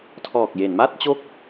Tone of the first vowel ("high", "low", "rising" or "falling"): low